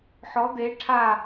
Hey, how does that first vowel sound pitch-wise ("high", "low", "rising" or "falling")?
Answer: rising